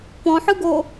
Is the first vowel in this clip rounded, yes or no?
yes